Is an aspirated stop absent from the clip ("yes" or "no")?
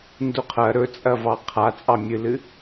no